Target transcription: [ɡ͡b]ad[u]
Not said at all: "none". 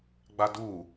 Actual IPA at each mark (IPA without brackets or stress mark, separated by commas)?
ɡ͡b, u